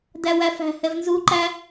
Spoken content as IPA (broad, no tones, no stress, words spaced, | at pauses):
dæwæfæ̤ hɛvnzu ǃæ